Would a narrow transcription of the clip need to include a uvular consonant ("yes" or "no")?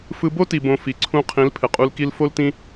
yes